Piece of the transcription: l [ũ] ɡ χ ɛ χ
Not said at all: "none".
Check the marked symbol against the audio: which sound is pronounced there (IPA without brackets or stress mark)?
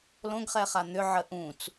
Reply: õ